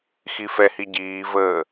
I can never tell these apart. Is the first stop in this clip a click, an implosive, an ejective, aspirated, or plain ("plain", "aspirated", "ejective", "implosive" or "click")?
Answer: plain